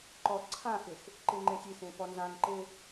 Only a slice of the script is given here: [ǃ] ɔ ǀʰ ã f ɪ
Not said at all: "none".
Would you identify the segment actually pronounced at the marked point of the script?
ǃ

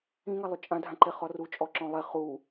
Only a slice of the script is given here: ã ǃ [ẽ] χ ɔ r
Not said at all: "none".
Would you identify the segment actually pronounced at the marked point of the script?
e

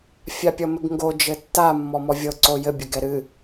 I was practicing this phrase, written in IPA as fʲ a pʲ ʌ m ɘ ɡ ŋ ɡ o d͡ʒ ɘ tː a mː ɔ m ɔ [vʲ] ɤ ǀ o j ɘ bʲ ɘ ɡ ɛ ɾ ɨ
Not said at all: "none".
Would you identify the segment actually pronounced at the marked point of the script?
vʲ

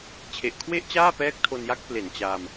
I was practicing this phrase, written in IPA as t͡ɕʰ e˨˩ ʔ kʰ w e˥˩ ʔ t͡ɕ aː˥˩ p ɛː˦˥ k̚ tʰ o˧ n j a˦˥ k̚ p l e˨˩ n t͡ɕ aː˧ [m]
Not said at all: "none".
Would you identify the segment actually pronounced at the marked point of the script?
m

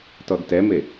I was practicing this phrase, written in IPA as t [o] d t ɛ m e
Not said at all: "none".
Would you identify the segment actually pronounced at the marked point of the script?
ɔ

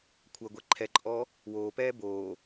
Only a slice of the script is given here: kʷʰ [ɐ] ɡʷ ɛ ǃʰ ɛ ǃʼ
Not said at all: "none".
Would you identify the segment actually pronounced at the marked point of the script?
ɐ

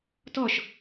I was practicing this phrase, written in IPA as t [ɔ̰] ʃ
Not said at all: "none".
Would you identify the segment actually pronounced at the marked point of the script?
ɔ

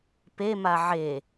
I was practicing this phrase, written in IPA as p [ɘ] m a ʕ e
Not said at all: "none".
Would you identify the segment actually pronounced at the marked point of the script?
e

